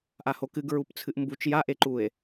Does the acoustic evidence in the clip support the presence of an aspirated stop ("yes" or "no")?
yes